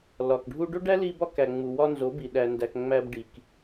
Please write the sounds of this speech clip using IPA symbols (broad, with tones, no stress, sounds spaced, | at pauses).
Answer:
l ɒ˨ k ɖʱ u˧ ɖ o˦ ɖ æ˦ l i˧ b ɒ˧ k æ˨ ŋ͡m u˨ w ɒ˧ n z o˨˦ b i˨ ɗ æ˧ n d æ˧ k ŋ͡m æ˧ b ɖ i˨ k